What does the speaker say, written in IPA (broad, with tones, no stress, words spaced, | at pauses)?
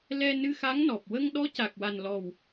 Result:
lɛ˧ nɨ˧xa˧˥ŋnɔ˨˩p̚ wə˧ŋɗɔ˧˥ ca˨˩k̚wa˨˩nlɔ˨˩w